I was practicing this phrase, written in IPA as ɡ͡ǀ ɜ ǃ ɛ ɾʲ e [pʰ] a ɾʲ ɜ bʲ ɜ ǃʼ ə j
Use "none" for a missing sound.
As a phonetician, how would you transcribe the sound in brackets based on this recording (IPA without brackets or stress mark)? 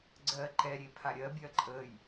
pʰ